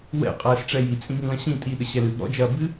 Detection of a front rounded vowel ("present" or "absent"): absent